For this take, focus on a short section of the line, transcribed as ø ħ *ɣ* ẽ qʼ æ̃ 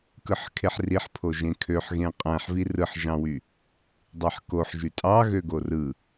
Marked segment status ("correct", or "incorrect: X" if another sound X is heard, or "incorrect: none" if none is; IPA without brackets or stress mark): correct